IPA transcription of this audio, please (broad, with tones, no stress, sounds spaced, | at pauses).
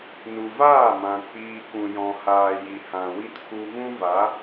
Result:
n u˨ v aː˦˨ m ã˨ k͡p iː˧ k ũ˨ j ɔ̃˨ h aː˨ j i˨ h ã˨ w i˦ t k u˦ v ũ˦ v a˨˦